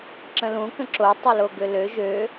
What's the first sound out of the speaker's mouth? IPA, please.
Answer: ǁ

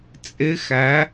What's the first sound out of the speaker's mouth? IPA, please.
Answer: t͡sʼ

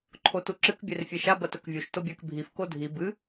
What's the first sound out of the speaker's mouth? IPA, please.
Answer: ǃʰ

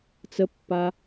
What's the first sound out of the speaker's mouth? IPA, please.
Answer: t͡s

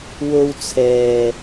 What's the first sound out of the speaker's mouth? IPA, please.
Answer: w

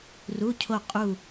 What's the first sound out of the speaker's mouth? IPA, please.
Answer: r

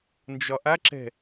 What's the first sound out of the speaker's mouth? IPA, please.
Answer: n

